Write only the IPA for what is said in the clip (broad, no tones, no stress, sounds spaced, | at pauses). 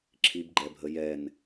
ǁʰ i b ɡ͡ǃ ɛ bʱ ə j ɛ n